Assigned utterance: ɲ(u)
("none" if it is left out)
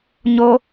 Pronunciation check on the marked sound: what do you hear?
o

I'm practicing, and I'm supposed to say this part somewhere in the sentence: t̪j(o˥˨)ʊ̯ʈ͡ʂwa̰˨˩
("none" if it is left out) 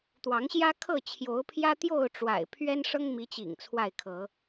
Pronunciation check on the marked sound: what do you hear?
o˥˨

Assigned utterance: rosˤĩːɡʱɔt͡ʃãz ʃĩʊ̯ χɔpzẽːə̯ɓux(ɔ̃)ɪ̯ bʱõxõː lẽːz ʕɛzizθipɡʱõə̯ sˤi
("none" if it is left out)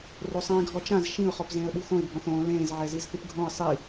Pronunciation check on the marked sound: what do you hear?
õ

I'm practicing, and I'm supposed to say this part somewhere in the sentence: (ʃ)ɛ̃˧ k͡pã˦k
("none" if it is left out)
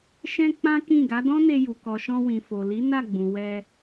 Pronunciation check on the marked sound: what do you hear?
ʃ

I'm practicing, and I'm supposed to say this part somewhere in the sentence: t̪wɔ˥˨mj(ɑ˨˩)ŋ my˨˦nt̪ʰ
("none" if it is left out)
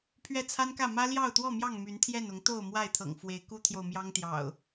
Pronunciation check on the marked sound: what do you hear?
ɑ˥˨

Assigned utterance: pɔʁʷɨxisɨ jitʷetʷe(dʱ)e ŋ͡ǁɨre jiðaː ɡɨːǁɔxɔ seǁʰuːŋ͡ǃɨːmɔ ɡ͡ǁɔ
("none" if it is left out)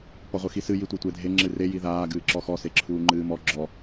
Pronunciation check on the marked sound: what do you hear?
dʱ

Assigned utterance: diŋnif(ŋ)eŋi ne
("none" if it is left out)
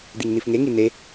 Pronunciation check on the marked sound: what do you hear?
ŋ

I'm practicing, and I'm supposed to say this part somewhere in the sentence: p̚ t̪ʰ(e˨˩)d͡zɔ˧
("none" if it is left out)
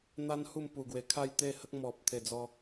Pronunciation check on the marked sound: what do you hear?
e˨˩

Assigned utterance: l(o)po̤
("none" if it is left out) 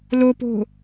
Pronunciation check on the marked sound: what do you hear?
o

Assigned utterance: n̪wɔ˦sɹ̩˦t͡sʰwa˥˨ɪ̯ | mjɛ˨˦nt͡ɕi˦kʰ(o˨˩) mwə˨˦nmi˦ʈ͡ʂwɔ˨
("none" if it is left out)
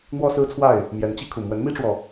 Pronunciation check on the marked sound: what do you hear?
u˨˩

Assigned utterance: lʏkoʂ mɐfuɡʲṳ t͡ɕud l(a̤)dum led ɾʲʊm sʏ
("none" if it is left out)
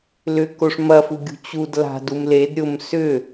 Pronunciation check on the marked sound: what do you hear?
a̤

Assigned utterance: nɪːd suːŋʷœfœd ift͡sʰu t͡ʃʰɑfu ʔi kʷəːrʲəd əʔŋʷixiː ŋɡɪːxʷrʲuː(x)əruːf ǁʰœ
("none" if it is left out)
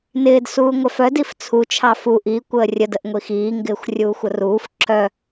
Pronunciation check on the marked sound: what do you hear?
xʷ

